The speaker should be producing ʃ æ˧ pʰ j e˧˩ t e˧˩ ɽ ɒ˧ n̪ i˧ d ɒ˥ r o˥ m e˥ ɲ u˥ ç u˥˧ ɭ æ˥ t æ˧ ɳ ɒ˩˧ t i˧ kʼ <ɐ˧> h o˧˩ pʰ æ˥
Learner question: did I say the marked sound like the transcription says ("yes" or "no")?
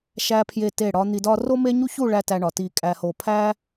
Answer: no